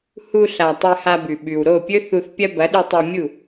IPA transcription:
h u˧ ɬ a˨ tˤ ɨ˧ h a˧ b ʉ˨ ɓ ʉ˨ w ɾ o˦˨ pʲ ɵ˦ θ u˧ θ pʲ ɐ˦ b ɐ˨˦ ɗ ʉ˧ tˤ ɵ˧ mʲ u˦˨

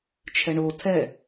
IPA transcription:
t͡ʃʰ ɛ ɳ o tʰ ɛ

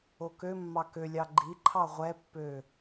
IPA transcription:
o k ø mː ɑ k ø lʲ ɑ ɡ͡ǃ i ǃʰ ɑ ʁʷ ɛ pː ø

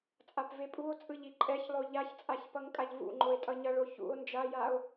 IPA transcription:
t͡sʼ a p v e pʼ u o̯ t͡sʼ ɯ ʎ i ǃʼ ɛ ç lˠ o ʎ a ç t͡sʼ a ç p ʌ ŋ kʼ a ʎ v ṵ ŋ͡ǃ o e̯ tʼ ʌ ɲ ʌ ɭ o ç ṵ o̯ n d͡ʒ a j a o̯

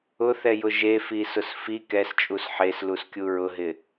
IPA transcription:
ʊ θ ɛ j ʊ ʒ e f i s ʊ s f i k ɛ s t͡ʃʼ u s ħ e s l u s kʲ u ɹ ʊ ɦ ɪ

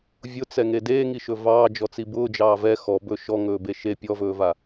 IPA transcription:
vʲ ʊ t͡s ɛ ŋ e d eː ŋ i ʃ ɵ v ɑː d͡ʒ ɔ t͡s i b ʊː d͡ʒ ɑː v ɛ x ɔ b ɵ ʃ ɔ ŋ ɵː b e ʃ e pʲ ɔ v ɵː v a

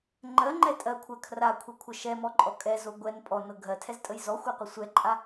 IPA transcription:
ŋ͡ǃ ɜ ŋ͡ǃ ɛ tʼ ɜ kʷʰ ɜ kʰ r a kʷʰ ɛ kʷʰ ə ʃ ɛ m ɔ ǃʼ ɔ kʼ ɛ z o ɡʷ ɛ n pʼ ɔ n ɤ ɡʱ ɜ tʰ ɛ z tʼ ə j z ɔ xʷ ɛ qʷ ə sʷ ɛ ǃʼ a

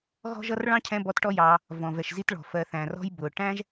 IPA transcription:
ɣ ɔ̤˦ ʒ ʌ˦ r ɭ ɑ̃˦ cʰ ɛ̃˧ b ɔ˧ t ʈ ɔ˦ j ɑː˧ | v ɔ̃˨ v ɛ˨ ʃ z i˧ t ɭ ɔ̤˨ f ɜ˨ θ æ̃˨ r ɔ̤˧ j b ʊː˨ ʈ æ̃˦ ʒ

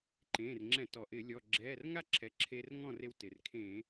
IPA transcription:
ǃ ẽː˩˧˩ r ŋ͡ǁ ɛ̃˧˩˧ t ɔ˩ ʔ ɪː˧˩˧ lʲ ɔ˩˧˩ ɡ͡ǁ ɛː˩˧˩ r ŋ a˥˩ ǁʰ ɛ˩˥ ǁʰ e˧ r ŋ ɔ̃˥˩ r e˧ w t ɪ˩ r kʰ ẽ˧˩˧

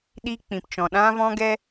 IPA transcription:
ɗ i˦ k͡p ĩ˨ p t͡ʃ ɔ̃˨ ɗ ã˦ v ɔ̃˦ ɡ ɛ˦

